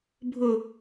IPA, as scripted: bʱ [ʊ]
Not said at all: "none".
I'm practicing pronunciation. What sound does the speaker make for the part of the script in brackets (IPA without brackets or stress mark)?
ʊ